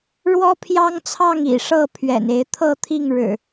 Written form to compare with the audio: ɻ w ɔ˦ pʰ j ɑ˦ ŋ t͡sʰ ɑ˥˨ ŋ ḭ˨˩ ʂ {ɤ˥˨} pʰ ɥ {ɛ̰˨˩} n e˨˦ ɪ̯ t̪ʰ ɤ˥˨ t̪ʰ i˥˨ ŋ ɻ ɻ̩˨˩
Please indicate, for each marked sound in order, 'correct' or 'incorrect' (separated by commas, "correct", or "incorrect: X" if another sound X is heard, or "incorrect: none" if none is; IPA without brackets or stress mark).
correct, correct